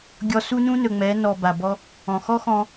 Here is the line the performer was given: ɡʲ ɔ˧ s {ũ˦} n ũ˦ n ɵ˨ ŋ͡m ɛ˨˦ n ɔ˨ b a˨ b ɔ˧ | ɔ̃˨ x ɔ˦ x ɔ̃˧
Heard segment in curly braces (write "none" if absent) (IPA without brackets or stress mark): u˦